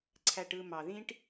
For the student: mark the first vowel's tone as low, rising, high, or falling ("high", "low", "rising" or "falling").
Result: low